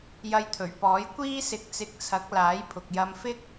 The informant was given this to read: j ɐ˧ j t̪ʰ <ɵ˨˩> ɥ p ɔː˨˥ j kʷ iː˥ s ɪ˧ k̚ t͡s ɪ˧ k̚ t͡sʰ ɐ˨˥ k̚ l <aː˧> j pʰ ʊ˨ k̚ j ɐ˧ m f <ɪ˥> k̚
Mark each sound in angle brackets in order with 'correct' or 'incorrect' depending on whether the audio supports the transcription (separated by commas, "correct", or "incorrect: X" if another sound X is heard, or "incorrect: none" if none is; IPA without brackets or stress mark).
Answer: correct, incorrect: aː˨˥, correct